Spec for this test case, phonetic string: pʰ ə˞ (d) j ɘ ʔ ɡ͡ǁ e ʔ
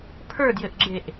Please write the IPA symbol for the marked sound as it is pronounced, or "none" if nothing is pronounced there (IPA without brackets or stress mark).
d